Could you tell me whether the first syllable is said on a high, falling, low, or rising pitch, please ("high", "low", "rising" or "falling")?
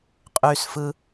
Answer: high